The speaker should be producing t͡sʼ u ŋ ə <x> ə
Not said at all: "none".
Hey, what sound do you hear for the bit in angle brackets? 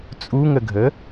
ɡʱ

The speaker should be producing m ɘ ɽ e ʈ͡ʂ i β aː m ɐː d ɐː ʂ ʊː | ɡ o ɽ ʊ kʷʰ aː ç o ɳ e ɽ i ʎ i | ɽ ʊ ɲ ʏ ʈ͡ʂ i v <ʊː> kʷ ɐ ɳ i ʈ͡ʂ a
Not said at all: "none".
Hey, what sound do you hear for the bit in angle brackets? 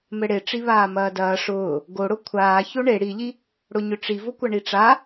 ʊ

